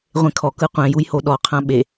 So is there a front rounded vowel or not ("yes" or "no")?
no